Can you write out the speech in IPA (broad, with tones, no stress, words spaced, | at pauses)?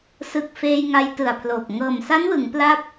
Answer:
sɯ˨˩k̚ feː˧jŋa˧jtɯ˨˩a̯pʰloː˨˩p̚ ŋɤː˨˩msa˦˥nwɯ˩˦ŋ pla˥˩p̚